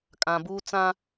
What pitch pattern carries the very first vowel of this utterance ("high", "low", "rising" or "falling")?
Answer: low